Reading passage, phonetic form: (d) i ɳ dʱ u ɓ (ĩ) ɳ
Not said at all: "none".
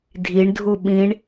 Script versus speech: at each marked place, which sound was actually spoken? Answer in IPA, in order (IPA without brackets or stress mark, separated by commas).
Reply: dʱ, ĩ